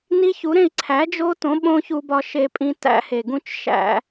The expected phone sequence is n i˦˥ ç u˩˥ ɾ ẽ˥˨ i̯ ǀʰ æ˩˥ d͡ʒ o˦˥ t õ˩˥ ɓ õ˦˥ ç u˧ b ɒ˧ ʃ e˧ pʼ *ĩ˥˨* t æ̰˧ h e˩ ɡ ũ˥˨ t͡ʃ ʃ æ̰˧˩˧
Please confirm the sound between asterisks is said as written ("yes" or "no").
no